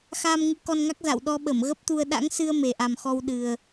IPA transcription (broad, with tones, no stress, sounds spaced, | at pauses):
x aː˧ m ŋ ɨ˨˦ k ɔ˧ n ŋ a˦˥ k̚ z a̰˧˨ w ɗ ɔ˧ ɓ ə˧˩ m ɣ ə˦˥ p̚ t̪ u˧ ə̯ ɗ a̰˧˥ ŋ s ɨ˧ ə̯ m e˨˩ ʔ a˨˩ m x ɔ˧ w ɗ ɨ˨˩ ə̯